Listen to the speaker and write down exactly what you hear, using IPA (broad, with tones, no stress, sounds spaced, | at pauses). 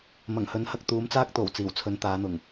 m ɐ˨˩ ŋ h ɵ˨˥ n h ɐ˧ k̚ t̪ uː˨˥ m t͡s aː˥ k̚ t̪ o˨˩ w t͡s iː˨˩ w t͡sʰ ɵ˨˧ n t̪ aː˨˧ n̪ ʊ˨˩ ŋ